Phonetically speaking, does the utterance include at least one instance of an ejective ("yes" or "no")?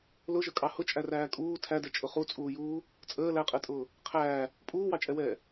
yes